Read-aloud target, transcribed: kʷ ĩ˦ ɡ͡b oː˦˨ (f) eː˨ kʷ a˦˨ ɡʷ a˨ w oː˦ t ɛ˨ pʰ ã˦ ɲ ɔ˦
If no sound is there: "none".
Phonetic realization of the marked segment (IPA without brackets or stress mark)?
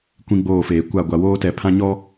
f